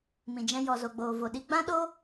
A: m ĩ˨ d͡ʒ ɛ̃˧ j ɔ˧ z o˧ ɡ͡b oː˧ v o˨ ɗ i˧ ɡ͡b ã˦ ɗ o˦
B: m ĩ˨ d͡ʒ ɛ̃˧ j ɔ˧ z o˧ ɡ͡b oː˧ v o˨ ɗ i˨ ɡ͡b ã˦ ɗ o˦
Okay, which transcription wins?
A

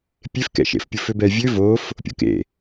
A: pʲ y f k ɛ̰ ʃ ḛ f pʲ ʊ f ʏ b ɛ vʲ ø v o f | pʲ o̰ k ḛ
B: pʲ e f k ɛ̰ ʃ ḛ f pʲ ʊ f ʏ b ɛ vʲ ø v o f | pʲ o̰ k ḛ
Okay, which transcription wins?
B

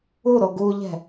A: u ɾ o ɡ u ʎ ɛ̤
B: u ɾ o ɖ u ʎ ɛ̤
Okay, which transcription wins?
A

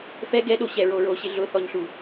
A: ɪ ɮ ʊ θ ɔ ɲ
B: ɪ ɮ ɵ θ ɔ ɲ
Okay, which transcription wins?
A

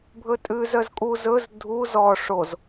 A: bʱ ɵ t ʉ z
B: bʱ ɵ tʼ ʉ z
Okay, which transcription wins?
B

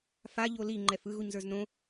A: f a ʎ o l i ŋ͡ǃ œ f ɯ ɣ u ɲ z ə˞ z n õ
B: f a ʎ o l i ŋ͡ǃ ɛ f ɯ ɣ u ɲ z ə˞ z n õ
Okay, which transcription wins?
B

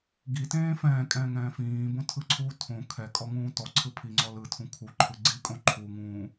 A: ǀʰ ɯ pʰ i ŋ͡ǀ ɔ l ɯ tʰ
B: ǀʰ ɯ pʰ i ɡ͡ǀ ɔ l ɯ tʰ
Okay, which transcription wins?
A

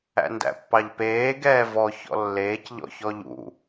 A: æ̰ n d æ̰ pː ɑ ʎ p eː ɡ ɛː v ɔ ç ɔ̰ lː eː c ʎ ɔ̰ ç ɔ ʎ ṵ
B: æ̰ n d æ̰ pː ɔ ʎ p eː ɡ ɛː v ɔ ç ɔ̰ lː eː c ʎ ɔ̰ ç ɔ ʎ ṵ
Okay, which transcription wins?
A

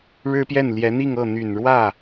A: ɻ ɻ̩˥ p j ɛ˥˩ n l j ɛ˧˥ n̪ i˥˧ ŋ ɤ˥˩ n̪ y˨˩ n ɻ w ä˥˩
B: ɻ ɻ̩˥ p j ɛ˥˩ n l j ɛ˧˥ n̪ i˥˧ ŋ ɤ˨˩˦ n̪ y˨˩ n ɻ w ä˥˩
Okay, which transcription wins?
A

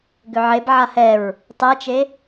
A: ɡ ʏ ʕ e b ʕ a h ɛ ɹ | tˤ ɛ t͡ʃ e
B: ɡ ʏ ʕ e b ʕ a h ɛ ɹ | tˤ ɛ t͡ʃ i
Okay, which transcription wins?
A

